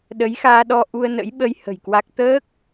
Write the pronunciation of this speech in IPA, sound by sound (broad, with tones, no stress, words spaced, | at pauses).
ɗə˨˦jxaː˧ɗɔ˧ ʔu˧ə̯nə̰˧˥jɓə˧j hə̤˨˩jkwa˦˥k̚ t̪əː˦˥k̚